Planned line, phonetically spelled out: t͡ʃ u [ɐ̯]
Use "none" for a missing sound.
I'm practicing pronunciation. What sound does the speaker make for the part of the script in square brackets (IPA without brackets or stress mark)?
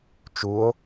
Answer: o̯